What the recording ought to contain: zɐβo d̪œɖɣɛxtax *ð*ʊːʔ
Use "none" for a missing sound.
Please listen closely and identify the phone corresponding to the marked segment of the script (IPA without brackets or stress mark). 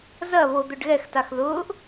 ð